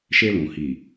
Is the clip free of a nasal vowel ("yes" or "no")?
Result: no